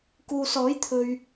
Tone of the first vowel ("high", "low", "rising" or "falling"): low